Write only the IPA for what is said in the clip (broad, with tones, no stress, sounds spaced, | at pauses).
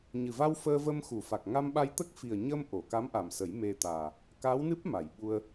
ɲ ɨ˨˩ v a˧ w f əː˧ v ə˧ m x u˨˩˨ f a˨˩ k̚ ŋ a˧ m ɓ a˧ j t̪ ə˦˥ k̚ f i˨˩ ə̯ ɲ ə˧ m ʔ o˨˩˨ k a˧˥ m ʔ a˨˩ m s ə˨˩˦ j m e˧ t̪ aː˨˩ | k aː˧˥ w n ɨ˦˥ p̚ m a˨˩˨ j ɓ u˧ ə̯